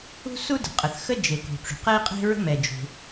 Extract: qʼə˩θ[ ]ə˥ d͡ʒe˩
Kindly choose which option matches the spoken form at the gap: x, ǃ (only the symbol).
x